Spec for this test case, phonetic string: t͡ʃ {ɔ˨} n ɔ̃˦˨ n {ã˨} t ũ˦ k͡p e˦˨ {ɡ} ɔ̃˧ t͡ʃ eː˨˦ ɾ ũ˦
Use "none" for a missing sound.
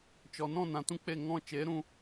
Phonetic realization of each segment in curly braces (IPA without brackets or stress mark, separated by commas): ɔ˨, ã˨, ŋ